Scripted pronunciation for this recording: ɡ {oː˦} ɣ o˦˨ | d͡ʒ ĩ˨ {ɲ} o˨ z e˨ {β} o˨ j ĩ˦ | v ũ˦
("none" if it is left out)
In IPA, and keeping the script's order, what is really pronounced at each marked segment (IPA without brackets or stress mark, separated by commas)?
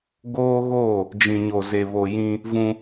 oː˦, ɲ, β